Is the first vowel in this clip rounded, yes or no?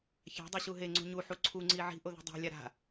no